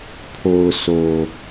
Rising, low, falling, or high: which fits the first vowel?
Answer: low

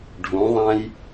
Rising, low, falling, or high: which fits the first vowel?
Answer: rising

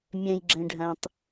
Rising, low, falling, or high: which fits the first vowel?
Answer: low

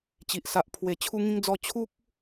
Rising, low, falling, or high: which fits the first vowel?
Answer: low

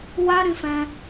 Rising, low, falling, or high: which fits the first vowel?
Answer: high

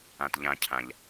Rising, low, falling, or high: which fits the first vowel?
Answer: low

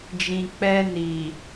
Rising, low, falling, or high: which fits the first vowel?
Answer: low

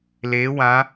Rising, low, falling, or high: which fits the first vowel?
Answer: rising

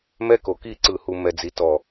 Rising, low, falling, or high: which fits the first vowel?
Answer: high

